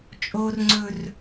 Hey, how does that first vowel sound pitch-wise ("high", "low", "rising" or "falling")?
high